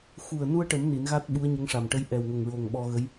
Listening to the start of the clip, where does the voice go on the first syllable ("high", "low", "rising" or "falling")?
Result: low